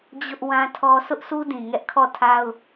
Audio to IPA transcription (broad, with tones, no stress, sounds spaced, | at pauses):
d͡ʑ ʊ˦ ʔ w ã˦ tʰ ɔ˦ sʰ ʊ˦ ʔ sʰ u˦ d ĩ˨ ŋ ɛ˦ ʔ kʰ ɔ˦˨ tʰ a˦ ʊ̯